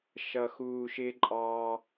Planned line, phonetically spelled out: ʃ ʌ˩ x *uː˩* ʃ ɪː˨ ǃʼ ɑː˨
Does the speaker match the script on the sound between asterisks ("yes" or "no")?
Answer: yes